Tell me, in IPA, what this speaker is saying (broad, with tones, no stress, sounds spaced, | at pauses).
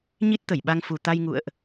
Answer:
ɲ i˦˥ t̚ t̪ ə˧˩ j ɓ a˧ ŋ f u˨˩ t̪ a˧ j ŋ ṵ˧˨ ə̯ ʔ